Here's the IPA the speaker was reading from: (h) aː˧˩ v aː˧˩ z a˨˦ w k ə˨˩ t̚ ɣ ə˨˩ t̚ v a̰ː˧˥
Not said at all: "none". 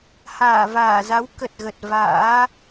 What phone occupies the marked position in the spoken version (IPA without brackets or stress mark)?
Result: h